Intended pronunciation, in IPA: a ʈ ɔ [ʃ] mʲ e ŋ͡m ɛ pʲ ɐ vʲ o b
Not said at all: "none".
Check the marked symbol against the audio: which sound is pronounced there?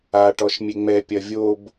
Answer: ʃ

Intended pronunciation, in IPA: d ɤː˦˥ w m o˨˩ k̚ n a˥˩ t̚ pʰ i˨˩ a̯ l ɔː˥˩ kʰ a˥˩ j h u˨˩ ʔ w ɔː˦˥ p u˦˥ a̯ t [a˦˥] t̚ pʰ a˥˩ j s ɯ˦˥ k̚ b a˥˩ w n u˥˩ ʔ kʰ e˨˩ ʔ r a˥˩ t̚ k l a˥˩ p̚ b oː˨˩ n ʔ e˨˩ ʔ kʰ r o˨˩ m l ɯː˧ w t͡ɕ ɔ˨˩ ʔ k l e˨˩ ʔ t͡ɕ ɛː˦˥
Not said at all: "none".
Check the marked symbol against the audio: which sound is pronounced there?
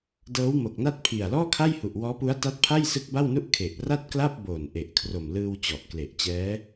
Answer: a˦˥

